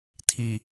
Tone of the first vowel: low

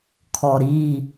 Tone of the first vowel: low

